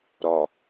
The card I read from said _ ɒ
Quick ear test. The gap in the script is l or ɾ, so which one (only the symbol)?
ɾ